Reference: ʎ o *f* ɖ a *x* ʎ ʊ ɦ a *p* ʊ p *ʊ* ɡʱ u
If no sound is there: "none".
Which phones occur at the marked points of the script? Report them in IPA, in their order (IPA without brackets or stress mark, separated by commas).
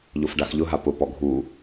f, x, p, ɔ